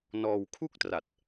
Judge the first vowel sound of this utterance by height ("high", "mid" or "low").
mid